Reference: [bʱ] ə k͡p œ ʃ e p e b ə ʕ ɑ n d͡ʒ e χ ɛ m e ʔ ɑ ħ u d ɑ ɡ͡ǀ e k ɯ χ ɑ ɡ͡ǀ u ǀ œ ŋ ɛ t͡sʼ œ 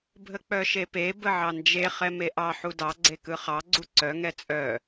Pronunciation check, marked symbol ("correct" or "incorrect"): correct